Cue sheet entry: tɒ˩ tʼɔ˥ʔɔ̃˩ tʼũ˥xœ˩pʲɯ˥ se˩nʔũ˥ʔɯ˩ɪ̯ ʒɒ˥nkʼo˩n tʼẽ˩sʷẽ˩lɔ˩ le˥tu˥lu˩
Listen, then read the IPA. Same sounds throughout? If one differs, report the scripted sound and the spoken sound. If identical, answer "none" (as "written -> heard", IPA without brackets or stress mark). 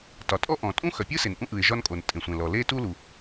none